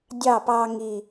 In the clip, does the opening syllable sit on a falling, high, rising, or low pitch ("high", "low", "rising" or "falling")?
falling